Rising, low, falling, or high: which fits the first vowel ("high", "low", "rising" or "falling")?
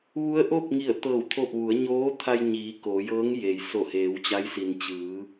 rising